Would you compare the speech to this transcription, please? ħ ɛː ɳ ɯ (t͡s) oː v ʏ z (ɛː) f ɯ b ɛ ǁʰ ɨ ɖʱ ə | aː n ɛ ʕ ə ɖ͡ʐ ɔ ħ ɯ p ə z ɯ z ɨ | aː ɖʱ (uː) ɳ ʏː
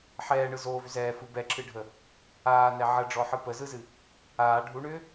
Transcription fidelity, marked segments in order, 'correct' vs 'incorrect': incorrect: z, correct, incorrect: u

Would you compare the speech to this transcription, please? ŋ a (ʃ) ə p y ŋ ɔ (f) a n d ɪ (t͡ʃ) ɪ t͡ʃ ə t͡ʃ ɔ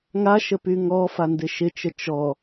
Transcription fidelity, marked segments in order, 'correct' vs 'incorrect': correct, correct, incorrect: ʃ

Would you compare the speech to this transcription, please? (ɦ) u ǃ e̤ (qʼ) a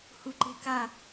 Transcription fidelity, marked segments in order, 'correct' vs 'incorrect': incorrect: h, incorrect: k

